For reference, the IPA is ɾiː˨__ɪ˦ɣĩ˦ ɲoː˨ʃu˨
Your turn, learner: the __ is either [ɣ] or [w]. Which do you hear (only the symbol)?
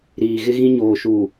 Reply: ɣ